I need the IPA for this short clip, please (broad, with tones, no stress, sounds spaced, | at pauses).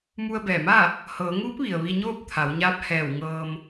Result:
m u˧ ə̯ b ɛː˧˩ m aː˥˨ | h ɤː˩˧ ŋ uː˧˥ p̚ ʋ i˩ ə̯ ʋ i˧ ɲ oː˥˨ p̚ t̪ʰ a˩˧ w ɲ aː˧˥ p̚ h ɛː˧˩ w ŋ ɤː˧ m